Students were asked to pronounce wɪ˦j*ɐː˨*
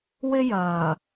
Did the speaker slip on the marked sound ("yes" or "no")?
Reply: no